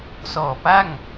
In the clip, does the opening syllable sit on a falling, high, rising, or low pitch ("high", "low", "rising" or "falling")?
low